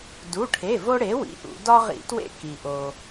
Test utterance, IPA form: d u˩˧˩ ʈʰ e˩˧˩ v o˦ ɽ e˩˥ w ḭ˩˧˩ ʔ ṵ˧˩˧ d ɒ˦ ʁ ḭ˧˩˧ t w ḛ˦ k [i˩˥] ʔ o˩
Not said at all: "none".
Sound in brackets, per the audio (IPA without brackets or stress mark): i˩